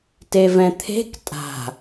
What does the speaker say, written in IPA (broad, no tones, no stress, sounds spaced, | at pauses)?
t e v ɛ̃ t̪ʰ e̤ k tʼ a̤